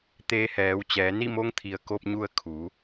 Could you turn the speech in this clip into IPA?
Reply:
t̪ eː˧ h ɛː˩˧ w t͡ɕ ɛː˩˧ n i˥˨ m o˧˥ ŋ t̪ʰ i˩ ə̯ k o˧ p̚ ɲ u˧ ə̯ kʰ u˩˧

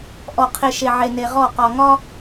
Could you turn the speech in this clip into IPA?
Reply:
ʔ ɔ˨ qʰ e˨ ʃ e˨ ʕ e˨ n e˨ ʁ ɔ˦˨ q ɒ˨ ŋ ɒ˦

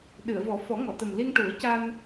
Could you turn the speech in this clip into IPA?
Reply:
ɗ ɨ˨˩˨ ə̯ v ɔ˨˩˦ f ɔ˨˩˦ ŋ ɔ˨˩˨ t̪ ə˨˩ m l i˧ ŋ ʈ u˨˩˦ ə̯ c a˧ n

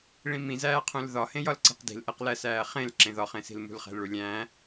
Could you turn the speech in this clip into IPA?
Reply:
ɭ ĩ m ĩ z æː qʰ ũ l ð ɒ h ẽ j ɒ l ǀ i̤ q d i̤ l ʔ e q l æ s æː χ ẽ l ǁ ẽ ð ɒ χ ẽ s i̤ l m ṳ l χ æ̤ l ɭ u lʲ æ̃

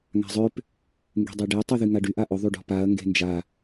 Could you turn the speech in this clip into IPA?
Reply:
ŋ a̤ zˤ ø p | ŋ ɡ e̤ dˤ ø ɖ e tˤ y ð y ŋ a ɖ y ʔ a ʔ ʊ ðˤ y ɖ ɔ̤ p a ɐ̯ ŋ ɡ e̤ n d͡ʒ a

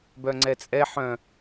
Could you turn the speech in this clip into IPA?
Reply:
b œ ŋ͡ǀ ɛ t͡sʼ ɛ ħ œ̃

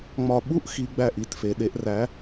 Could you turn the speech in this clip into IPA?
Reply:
ŋ͡m ɒ˦˨ ɓ u˦˨ ʔ x i˩˧ ɡ͡b æ˦˨ ʔ i˦˨ t f e˩˧ ɗ e˩˧ ʔ r æ˩˧

